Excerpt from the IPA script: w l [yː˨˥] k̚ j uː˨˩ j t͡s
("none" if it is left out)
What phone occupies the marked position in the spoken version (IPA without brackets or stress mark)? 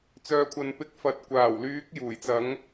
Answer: yː˨˥